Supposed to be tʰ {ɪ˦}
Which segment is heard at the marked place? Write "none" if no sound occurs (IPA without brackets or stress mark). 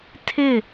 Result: ɪ˦˨